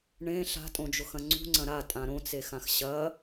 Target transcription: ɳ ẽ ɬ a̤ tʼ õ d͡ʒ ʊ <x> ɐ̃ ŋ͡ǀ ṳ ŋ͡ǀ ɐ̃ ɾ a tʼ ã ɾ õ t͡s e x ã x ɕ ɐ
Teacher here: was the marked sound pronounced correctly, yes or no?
yes